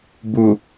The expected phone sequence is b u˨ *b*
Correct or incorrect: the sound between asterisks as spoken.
incorrect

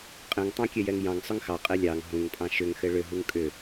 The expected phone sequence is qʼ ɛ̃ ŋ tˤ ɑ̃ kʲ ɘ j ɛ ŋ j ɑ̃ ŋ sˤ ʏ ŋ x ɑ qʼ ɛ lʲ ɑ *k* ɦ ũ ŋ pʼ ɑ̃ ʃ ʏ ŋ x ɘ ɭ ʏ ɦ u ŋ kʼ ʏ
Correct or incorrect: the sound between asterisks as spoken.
incorrect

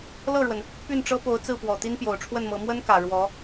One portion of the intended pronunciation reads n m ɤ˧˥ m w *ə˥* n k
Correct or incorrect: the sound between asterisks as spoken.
correct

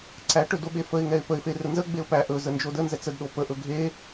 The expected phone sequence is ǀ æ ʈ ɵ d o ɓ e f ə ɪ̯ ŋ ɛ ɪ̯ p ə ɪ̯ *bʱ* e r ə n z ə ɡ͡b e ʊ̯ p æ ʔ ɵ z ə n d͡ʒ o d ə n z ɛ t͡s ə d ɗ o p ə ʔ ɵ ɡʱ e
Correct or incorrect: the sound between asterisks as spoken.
incorrect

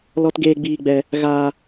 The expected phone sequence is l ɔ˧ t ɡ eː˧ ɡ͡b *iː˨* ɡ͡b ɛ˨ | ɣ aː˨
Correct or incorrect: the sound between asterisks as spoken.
correct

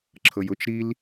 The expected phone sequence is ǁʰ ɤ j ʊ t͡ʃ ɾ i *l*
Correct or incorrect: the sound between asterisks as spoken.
correct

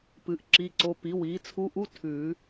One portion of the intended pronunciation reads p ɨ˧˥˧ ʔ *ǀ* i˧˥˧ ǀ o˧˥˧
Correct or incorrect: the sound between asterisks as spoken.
incorrect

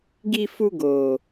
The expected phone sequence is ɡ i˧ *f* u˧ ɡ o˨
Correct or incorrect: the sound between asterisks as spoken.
correct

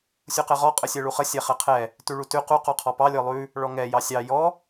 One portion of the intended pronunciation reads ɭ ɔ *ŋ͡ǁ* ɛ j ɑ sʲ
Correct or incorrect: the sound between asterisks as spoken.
incorrect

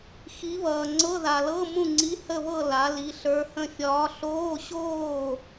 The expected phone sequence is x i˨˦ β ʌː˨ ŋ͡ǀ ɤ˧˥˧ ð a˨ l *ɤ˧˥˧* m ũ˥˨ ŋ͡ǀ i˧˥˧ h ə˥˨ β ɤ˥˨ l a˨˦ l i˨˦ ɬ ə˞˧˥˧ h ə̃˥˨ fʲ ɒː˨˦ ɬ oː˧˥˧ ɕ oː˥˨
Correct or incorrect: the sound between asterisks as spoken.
correct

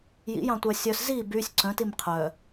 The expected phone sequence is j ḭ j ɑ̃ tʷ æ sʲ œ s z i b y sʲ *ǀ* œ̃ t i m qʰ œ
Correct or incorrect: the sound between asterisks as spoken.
correct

